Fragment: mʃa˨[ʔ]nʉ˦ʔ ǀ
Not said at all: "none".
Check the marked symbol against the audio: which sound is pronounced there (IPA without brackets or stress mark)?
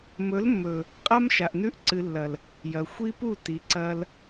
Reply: ʔ